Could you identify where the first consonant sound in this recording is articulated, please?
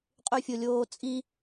uvular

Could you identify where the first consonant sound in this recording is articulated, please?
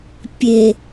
labial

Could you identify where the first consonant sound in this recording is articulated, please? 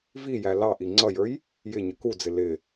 labial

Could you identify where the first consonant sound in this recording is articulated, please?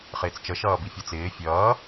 uvular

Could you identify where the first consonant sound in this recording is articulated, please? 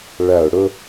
retroflex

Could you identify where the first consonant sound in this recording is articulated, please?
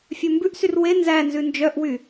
labial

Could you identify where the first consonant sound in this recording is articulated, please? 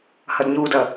glottal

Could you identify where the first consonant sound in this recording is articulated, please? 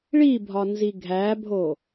retroflex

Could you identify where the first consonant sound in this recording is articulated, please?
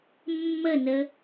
labial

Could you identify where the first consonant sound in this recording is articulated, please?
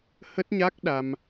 glottal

